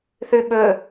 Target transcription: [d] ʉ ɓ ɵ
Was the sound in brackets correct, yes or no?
no